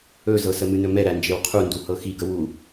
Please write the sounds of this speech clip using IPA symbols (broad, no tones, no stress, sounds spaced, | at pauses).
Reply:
ɵ z ɤ s ə m ɨ n ɵ m ɛ ɾ æ n d͡ʒ e w qʰ u n d u h ɤ x i ɡ ə w u